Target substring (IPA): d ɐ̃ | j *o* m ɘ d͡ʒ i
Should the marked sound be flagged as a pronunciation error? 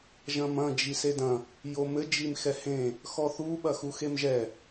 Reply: no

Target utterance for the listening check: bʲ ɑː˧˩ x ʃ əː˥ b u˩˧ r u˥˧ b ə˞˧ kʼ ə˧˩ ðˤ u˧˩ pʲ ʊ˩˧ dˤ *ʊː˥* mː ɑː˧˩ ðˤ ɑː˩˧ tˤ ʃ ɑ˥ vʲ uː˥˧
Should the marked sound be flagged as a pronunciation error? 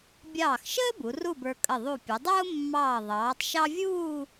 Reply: no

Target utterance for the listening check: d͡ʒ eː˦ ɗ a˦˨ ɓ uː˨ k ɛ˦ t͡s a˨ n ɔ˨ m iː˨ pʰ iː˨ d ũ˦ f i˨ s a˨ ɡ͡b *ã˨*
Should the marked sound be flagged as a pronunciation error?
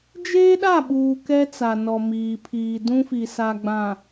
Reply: no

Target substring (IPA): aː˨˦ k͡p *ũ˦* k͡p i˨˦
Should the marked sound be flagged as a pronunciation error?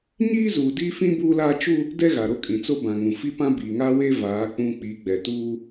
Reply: no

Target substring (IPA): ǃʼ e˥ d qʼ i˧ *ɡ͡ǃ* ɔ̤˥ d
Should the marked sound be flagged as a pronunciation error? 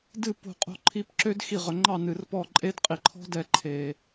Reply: yes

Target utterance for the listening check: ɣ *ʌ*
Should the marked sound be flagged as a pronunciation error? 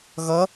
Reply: no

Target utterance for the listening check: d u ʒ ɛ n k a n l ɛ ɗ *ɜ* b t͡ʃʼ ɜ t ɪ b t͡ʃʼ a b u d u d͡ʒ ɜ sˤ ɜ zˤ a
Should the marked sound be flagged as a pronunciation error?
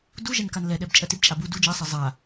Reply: yes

